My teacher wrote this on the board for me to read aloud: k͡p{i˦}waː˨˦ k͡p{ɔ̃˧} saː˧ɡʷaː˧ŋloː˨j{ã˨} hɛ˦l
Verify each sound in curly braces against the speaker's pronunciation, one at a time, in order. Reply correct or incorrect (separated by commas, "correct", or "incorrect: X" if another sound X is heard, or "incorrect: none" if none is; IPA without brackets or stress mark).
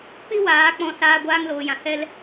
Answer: correct, correct, correct